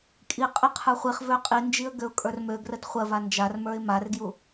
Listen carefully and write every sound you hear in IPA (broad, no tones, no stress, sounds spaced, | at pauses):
kʼ i qʼ ə qʰ ə˞ χʷ i χ v ø qʼ i n d͡ʒ i ə̯ ɡ ø ʊ̯ kʼ ə˞ r m ø ɡ r ə d χʷ ɜ v a n d͡ʒ a r m ə˞ ɪ̯ m a r ɡ j u